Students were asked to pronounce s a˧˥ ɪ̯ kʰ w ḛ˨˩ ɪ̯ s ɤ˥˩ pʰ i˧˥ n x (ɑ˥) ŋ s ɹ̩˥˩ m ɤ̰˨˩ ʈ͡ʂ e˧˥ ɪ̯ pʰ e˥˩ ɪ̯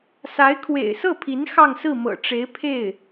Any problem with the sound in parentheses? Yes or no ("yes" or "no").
yes